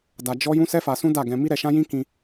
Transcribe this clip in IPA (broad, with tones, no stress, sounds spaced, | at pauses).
d a˧ d͡ʒ ɔ˦ j ũ˦ s ɛ˦ f a˧ s ũ˦ d a˦˨ ɡ ɛ̃˧ m i˦ ɾ ɛ˧ ʃ ã˦ j ĩ˦ k ĩ˦